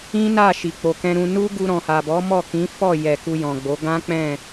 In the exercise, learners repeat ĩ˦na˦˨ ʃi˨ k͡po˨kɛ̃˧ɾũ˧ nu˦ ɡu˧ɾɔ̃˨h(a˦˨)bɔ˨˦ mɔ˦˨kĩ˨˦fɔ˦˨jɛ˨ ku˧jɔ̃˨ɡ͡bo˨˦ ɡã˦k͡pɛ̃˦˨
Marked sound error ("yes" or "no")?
yes